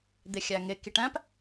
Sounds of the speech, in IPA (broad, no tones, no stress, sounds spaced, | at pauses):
d̪ e xʲ æ ŋ e k i ʈ æ̃ p